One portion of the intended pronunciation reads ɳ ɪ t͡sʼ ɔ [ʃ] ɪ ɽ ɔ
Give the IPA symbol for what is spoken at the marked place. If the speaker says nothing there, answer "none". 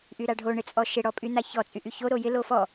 ʃ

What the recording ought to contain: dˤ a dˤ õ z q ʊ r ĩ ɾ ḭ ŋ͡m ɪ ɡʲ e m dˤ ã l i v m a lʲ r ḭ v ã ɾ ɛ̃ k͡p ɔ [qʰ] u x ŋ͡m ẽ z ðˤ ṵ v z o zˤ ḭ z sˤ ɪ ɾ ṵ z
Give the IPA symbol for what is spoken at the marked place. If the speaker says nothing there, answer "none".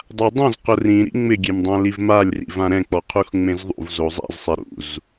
qʰ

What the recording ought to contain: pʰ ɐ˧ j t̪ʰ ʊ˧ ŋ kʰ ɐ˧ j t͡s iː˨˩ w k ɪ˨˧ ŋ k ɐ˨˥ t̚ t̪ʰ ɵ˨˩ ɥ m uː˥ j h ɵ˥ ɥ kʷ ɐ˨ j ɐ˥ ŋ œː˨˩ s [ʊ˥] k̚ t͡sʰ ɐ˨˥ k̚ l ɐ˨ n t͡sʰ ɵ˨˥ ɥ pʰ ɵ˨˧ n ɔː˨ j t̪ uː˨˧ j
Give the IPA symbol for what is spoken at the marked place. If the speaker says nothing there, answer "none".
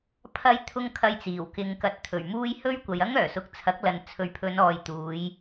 ʊ˨˥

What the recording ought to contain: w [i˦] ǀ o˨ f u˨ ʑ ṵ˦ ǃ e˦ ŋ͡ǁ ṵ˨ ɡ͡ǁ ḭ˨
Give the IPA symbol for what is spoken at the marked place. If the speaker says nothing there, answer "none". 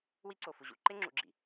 i˦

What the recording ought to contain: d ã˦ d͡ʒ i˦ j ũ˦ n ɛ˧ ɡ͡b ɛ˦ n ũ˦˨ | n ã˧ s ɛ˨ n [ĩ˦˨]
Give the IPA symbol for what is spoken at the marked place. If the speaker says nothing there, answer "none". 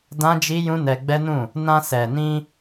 ĩ˧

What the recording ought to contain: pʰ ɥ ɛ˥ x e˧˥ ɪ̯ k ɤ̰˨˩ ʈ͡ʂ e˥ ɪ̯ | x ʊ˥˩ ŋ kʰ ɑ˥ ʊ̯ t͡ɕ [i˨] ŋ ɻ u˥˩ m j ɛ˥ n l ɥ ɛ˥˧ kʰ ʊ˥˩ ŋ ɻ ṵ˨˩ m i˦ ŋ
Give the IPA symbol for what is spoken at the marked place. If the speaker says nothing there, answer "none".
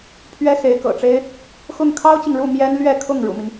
i˨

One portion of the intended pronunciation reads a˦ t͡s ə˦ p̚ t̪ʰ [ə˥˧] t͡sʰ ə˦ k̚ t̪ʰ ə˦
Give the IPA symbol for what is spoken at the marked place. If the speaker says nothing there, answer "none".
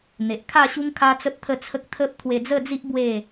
ə˥˧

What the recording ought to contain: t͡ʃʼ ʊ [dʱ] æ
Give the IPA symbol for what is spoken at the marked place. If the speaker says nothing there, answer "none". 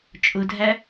dʱ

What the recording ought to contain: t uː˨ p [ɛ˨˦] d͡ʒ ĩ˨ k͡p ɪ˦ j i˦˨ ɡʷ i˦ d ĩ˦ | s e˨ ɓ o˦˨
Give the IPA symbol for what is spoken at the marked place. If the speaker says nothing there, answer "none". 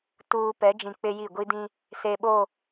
ɛ˨˦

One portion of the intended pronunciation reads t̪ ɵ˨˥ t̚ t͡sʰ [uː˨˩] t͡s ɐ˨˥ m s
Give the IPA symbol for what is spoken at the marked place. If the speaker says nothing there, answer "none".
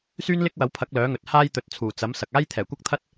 uː˨˩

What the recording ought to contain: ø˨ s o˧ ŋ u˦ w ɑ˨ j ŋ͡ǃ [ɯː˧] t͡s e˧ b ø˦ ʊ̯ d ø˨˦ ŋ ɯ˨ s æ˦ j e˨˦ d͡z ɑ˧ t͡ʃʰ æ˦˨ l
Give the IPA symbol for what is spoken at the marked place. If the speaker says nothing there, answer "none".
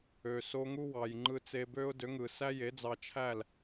ɯ˧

